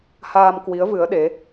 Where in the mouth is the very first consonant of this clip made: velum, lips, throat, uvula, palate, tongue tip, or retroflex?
throat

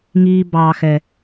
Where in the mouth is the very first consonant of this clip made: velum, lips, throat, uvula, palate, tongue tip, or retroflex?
velum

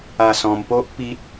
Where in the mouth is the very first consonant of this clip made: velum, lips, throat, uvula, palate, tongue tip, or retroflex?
tongue tip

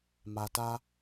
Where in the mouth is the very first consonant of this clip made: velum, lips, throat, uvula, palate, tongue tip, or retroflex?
lips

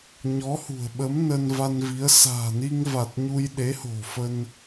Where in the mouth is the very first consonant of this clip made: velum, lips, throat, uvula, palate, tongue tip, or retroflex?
palate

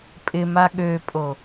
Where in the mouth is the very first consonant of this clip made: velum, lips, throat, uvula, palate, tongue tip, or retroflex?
lips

